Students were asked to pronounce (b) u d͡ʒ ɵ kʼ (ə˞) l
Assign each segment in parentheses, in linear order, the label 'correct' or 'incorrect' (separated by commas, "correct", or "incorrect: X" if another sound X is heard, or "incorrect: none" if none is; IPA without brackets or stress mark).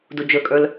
incorrect: d, correct